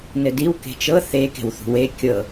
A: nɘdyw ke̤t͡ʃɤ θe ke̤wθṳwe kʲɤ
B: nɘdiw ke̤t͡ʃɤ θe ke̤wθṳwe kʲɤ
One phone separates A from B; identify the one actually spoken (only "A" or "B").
B